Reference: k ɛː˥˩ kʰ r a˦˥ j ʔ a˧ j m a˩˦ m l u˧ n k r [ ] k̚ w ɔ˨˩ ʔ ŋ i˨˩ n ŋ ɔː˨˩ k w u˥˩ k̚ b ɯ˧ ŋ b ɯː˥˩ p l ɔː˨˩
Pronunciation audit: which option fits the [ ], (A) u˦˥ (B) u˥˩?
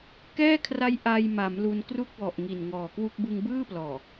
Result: B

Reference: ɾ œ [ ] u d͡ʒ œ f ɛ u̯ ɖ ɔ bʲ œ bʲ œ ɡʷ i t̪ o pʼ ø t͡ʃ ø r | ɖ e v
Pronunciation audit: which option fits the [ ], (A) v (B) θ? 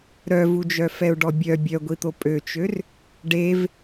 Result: A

